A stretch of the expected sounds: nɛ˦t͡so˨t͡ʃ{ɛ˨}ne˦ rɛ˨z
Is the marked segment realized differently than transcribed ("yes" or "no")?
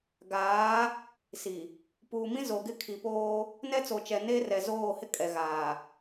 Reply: no